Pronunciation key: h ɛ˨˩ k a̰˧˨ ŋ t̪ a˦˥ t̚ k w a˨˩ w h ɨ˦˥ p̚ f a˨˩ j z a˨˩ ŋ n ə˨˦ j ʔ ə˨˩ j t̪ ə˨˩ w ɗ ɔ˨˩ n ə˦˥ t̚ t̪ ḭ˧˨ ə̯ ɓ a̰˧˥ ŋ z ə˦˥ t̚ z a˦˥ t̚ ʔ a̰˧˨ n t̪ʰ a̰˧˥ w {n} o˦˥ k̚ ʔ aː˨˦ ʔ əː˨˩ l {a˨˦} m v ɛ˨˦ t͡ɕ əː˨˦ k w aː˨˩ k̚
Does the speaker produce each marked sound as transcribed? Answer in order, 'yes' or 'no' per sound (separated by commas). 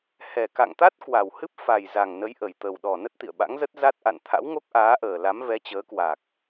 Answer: no, yes